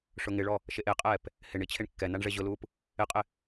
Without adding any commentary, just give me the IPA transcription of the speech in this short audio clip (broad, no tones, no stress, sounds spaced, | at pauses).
ʂ ʊ ŋ ɪ ɭ ɔ | ʃ e ʔ e qʼ ɛː p | h ɪ ɳ i t͡ɕʰ e ɳ kː ɛ n a ɳ ʐ e ʑ ʊ l uː p | ɪ qʼ ɪ